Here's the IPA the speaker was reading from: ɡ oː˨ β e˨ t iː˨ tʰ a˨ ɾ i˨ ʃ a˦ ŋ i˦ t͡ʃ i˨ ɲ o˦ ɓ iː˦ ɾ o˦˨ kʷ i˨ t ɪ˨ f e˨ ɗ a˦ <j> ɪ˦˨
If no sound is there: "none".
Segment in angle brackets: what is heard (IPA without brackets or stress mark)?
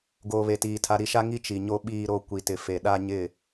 ɲ